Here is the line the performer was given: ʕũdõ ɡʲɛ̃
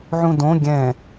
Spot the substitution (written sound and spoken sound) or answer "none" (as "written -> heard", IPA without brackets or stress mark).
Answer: none